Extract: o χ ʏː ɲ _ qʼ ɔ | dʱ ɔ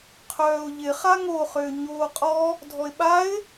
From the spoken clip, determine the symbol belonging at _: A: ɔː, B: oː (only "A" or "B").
B